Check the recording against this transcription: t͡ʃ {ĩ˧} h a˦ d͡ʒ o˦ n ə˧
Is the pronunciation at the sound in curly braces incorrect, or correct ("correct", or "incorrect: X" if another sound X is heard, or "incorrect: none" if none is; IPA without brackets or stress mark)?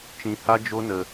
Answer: correct